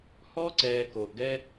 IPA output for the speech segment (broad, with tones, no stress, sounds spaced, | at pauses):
h ɔ˦ ǀ ɛː˨ k oː˨ ʔ ɡ ɛ˦